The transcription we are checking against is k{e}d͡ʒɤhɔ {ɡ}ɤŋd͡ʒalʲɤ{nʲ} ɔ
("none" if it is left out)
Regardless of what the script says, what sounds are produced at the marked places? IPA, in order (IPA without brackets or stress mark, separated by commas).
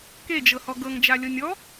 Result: e, ɡ, nʲ